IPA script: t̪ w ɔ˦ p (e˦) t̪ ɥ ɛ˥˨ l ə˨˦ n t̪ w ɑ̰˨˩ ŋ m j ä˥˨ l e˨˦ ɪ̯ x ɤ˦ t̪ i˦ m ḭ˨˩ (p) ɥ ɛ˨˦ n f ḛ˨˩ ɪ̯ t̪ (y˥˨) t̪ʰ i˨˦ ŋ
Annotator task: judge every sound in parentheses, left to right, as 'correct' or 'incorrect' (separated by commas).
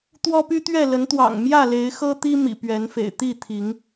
incorrect, correct, incorrect